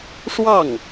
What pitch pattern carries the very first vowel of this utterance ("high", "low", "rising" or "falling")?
falling